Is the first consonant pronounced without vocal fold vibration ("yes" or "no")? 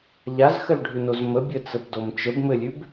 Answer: no